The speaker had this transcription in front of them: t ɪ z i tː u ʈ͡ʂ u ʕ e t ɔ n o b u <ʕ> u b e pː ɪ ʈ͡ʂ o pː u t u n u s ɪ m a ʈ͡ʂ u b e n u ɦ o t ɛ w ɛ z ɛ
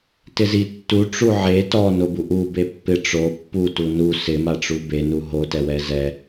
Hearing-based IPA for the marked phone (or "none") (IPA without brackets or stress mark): ʔ